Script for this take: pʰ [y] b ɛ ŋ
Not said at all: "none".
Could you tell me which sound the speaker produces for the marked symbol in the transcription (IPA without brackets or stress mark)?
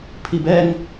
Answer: i